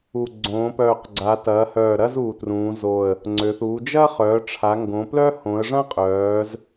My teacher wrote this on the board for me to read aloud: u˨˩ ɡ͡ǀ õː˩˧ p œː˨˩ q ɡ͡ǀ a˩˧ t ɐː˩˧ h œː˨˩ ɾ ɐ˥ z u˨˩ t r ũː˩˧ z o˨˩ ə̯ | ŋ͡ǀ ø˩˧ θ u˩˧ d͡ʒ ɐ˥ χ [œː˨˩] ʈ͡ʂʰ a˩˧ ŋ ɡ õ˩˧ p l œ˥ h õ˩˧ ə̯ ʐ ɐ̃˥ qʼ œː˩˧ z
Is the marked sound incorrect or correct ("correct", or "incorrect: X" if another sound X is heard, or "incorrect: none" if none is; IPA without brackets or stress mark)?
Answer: incorrect: œː˩˧